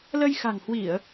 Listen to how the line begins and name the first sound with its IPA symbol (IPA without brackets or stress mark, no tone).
l